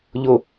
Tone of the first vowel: low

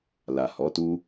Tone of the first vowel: low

